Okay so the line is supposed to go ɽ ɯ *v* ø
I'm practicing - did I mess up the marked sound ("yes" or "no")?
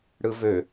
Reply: no